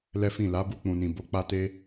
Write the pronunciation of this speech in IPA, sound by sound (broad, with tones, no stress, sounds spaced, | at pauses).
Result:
l ɛ˦ f ĩ˦˨ l a˨˦ b u˧ k͡p ũ˨ n ĩ˨ b o˨˦ k͡p a˦ t e˦